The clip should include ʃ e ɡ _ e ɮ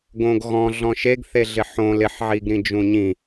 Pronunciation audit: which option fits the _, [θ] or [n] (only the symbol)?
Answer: θ